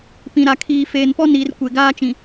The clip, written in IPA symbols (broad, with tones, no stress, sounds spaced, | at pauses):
p ĩ˨ ɾ a˨ kʰ iː˨ f eː˨ n p ɔ˦ n iː˨ r kʷ e˨ ɡ aː˦ t͡ʃ ĩ˨